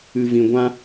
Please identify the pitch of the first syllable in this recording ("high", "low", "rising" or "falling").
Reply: low